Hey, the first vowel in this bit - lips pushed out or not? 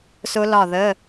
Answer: yes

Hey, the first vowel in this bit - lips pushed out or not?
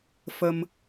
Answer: no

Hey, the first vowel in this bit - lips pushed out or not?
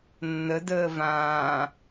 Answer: no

